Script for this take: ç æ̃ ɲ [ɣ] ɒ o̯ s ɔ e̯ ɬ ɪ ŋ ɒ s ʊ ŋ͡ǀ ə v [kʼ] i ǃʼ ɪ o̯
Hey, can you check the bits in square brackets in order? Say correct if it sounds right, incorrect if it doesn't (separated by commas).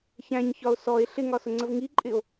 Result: incorrect, incorrect